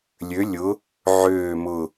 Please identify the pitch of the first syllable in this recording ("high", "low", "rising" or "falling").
rising